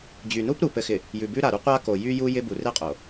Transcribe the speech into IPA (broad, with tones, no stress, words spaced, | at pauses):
d͡ʑy˨nu˦p ɾu˨ pɘ˨xɪ˨ | jʉ˨bʉ˦ɾa˨ɾu˦ qʷa˦ko˨ jy˦ju˦ jɪ˦bu˨ re˦qʼo˨